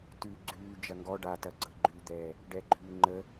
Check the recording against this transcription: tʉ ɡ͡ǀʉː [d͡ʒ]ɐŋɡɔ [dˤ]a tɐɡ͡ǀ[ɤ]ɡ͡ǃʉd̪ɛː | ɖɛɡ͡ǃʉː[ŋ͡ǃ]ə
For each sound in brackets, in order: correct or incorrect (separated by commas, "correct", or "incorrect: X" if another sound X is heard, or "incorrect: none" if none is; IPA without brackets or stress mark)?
correct, incorrect: ɖ, correct, correct